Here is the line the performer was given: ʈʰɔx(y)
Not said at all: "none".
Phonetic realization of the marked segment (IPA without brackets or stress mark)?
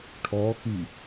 y